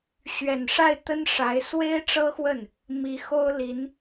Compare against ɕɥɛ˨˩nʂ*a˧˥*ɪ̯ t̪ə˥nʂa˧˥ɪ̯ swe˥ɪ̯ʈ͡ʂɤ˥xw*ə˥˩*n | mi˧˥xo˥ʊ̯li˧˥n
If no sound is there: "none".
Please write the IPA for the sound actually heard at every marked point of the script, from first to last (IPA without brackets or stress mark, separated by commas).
a˥˩, ə˥˩